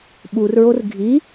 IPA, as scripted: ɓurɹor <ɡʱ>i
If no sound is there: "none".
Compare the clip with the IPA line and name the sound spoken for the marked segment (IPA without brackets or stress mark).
ɡʱ